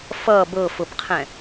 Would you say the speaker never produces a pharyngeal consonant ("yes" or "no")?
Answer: yes